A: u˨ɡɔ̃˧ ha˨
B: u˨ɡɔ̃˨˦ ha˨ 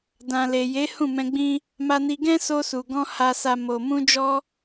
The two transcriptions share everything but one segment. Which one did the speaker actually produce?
A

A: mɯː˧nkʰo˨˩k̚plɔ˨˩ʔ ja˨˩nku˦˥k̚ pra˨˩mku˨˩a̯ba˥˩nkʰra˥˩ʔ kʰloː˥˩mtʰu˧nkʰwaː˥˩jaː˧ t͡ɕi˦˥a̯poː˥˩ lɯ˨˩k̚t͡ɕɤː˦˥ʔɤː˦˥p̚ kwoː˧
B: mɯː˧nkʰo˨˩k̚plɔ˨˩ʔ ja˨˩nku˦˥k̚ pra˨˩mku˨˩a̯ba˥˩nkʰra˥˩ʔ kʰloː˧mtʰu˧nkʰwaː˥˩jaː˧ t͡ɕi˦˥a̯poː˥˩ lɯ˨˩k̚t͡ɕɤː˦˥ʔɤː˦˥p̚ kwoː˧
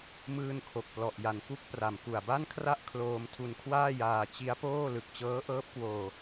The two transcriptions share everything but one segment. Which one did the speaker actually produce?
B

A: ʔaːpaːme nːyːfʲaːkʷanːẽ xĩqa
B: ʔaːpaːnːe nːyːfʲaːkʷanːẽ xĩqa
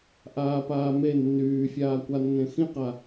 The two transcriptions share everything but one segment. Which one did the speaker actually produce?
A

